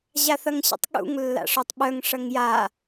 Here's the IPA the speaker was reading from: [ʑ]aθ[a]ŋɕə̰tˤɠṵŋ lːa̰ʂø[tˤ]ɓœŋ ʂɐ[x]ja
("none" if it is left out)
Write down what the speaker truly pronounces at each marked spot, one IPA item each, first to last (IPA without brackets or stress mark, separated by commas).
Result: ʑ, ɐ, tˤ, ŋ